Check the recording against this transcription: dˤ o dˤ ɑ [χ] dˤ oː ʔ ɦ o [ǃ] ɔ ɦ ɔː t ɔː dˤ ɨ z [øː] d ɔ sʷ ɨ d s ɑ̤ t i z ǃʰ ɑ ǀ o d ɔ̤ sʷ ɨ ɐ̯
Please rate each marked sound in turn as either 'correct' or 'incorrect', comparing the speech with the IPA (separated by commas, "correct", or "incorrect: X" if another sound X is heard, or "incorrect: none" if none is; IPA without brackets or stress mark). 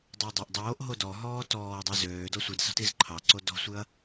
incorrect: ʔ, incorrect: d, correct